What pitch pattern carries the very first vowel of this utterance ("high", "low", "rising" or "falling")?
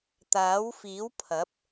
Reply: rising